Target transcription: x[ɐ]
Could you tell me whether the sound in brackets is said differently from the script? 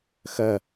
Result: no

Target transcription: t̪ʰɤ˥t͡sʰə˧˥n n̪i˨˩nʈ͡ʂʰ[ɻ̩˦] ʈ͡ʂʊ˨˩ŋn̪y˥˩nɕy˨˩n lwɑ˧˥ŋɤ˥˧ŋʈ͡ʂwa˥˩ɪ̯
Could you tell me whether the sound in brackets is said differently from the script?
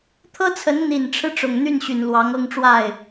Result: no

